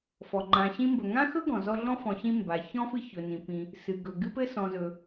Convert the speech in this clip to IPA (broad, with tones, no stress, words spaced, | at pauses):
fɔ˩ŋ͡ǃã˨ɕĩ˥mbɵ˨ ŋã˥xɵ˥ɡɔ̃˩ zɔ˦ɮɔ̃˥fɔ̃˨ɕĩ˦ mba˩çɔ̃˥fɨ˦ çɵ˩nĩ˩ pĩ˩ | sɨ˩ɡɵ˩ ɡɨ˥pɘ˥sɔ̃˨zɵ˩